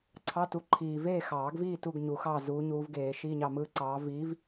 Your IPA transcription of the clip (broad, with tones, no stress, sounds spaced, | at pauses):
ǀʰ ɑ˧˥˧ t u˨˥ ǃʰ iː˨ v eː˥˨ x ɑː˨˩˦ ɡ v iː˥˨ t u˥˨ ɡ ɲ u˨˩˦ x ɑː˥˨ z uː˨˥ ɲ uː˨˥ v ɡ eː˨˩˦ ʃ iː˧˥˧ ɲ ɑ˥˨ m ɯː˥ ǀ ɑː˨˥ v iː˨˥ v